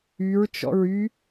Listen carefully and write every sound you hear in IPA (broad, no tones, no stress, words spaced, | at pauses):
yɹ t͡ʃɔ̰ɹy